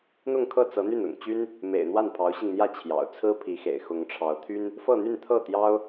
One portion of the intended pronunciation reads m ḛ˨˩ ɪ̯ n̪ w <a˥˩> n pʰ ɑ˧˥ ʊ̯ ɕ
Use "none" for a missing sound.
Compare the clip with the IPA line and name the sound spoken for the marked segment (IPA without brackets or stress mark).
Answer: a˥˩